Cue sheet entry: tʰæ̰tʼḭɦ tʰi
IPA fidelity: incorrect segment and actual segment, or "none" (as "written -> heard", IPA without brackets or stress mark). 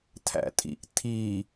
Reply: ɦ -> ʔ